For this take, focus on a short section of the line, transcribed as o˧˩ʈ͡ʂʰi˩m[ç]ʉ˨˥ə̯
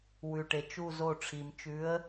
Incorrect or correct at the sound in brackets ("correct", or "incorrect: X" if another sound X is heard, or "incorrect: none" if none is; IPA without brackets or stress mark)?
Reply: incorrect: t͡ʃ